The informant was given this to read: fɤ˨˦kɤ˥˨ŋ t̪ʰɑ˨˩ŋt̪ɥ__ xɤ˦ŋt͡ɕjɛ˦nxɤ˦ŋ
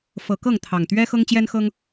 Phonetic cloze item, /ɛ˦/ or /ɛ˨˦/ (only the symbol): ɛ˦